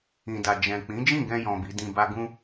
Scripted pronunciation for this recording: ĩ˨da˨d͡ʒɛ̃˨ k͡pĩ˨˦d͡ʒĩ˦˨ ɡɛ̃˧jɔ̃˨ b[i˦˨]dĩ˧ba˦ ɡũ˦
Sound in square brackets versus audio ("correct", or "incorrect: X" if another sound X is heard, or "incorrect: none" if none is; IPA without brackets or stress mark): incorrect: i˨˦